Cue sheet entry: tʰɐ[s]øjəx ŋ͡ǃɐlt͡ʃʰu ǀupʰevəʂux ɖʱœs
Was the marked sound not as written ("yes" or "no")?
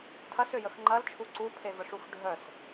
no